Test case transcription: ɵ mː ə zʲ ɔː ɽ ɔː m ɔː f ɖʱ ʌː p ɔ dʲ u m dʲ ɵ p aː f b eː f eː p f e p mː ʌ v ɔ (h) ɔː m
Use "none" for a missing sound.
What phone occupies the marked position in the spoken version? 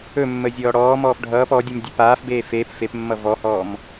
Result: h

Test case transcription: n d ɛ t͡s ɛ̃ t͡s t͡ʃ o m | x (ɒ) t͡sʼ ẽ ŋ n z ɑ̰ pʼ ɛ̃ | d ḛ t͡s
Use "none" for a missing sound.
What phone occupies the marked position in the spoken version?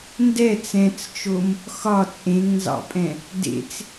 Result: ɒ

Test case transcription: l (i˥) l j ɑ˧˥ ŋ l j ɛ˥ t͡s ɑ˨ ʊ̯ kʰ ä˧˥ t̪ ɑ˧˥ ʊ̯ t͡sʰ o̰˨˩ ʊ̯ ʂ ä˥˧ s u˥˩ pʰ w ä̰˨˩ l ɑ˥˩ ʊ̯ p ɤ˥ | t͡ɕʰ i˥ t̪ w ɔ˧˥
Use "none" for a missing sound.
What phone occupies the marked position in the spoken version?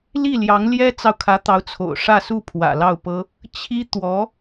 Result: i˥˩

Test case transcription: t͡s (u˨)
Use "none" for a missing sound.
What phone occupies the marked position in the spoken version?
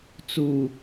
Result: u˨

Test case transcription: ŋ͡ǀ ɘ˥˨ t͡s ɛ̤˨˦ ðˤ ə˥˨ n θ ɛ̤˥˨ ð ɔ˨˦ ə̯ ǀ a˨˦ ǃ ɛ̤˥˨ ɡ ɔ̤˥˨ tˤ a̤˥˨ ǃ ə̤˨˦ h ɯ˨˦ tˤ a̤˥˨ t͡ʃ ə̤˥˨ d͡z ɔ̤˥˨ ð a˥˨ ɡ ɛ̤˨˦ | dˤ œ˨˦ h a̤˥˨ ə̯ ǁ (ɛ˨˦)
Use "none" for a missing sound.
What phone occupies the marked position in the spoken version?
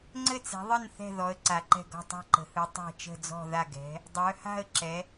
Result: ɛ˨˦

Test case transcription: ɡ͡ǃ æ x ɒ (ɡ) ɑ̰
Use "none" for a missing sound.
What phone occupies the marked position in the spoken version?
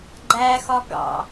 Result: ɡ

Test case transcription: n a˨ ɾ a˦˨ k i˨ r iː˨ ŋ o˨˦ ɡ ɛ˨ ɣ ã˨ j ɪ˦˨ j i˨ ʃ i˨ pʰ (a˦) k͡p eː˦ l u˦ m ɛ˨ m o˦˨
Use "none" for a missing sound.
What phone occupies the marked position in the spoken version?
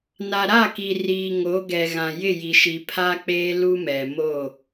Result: a˦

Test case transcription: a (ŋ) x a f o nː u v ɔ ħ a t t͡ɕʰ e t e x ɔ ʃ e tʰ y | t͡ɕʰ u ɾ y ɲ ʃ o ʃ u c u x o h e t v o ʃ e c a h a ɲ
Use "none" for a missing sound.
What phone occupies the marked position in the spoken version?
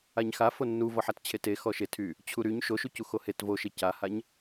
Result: ɲ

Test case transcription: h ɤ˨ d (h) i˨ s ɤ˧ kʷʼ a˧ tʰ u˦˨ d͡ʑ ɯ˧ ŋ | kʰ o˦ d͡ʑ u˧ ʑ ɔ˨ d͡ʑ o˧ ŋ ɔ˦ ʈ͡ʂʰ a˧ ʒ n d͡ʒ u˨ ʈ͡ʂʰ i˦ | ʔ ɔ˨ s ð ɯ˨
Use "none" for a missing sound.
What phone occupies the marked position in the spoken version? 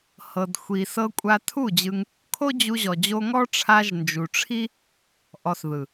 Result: xʷ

